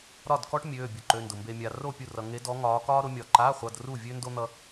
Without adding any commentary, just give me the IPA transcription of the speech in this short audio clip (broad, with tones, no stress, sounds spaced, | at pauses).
ɾ ɒ˥˨ d k ɔ˥ ʈ mʲ øː˧˥˧ bʲ ʊ˧˥˧ ǃ ø˧˥˧ n d ʊ˧ m b e˧ mʲ a˧ r o˥˨ pʲ u˥˨ r ʌ˧ ŋ e˧˥ d ɔ˧˥ ŋ ɒː˧˥ k ɒː˥ ɾ ʊ˧˥ mʲ ɒ˧ ǃ a˧˥˧ χʷ ʌ˧˥˧ d r u˥˨ vʲ ø˥ n d o˥ n̪ ʌ˥